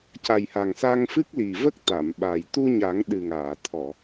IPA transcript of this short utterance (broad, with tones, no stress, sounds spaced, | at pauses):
c a˨˩ j h a˨˩ ŋ s a˧ ŋ f ɨ˦˥ k̚ l i˨˩ v ə˦˥ k̚ t̪ a˨˩˨ m ɓ a˨˩ j t̪ u˧ ɲ a˨˩˦ ŋ ɗ ɨ˨˩ ŋ aː˨˩˨ t̪ʰ ɔ˨˩˨